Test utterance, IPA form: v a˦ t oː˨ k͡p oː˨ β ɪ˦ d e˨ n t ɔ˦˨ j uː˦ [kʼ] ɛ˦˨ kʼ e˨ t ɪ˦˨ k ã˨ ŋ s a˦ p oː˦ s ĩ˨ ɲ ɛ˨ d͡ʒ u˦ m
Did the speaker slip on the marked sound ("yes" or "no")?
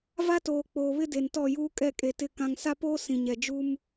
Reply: no